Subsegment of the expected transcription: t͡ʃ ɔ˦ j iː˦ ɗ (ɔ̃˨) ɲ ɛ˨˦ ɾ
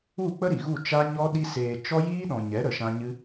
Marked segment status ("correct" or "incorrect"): correct